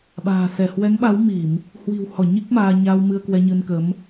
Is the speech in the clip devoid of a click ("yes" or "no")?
yes